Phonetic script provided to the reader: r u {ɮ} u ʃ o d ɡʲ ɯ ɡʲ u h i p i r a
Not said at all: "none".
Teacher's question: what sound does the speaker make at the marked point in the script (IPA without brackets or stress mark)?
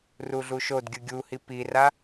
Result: ɮ